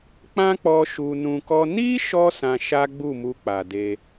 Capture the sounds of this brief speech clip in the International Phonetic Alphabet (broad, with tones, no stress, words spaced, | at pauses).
k͡pã˦k͡pɔ˧ ʃu˧nũ˧kɔ˦ ni˦ʃɔ˧ sã˧ʃa˦ɡ͡bu˦˨mu˧ k͡pa˨de˧